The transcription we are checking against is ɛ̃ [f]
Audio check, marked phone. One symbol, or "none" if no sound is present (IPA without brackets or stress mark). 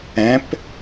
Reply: p